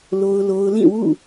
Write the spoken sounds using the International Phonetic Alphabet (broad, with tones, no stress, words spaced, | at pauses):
lo˦ʊ̯lo˦ʊ̯ lĩ˦˨wṵ˦˨